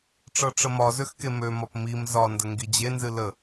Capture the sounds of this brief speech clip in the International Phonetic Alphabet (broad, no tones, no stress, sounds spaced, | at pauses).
ʈ͡ʂ ɤ ʈ͡ʂ ə m ɒ z ø x k e m ø m ɒ p m i m z ɒ n d ə ŋ ɡ i d͡ʑ e n z ɨ l ə